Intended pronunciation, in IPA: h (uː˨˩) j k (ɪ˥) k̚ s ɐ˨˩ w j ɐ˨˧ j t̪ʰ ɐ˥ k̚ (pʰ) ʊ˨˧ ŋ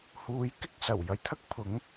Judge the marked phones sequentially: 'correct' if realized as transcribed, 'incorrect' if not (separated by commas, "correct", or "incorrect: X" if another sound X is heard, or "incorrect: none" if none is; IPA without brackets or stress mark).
incorrect: uː˨˧, correct, correct